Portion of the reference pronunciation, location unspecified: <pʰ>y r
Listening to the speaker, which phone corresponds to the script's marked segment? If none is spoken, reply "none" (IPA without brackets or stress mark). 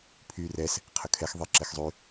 pʰ